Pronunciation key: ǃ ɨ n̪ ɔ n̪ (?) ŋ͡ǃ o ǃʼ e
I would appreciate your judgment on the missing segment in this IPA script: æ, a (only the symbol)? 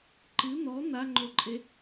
a